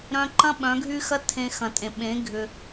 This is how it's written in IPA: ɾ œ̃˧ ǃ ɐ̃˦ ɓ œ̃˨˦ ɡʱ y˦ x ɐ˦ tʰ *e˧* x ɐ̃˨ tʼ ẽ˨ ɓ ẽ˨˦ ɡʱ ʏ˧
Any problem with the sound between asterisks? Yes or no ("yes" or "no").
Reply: yes